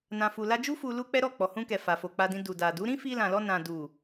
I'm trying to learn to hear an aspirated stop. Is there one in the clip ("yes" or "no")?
no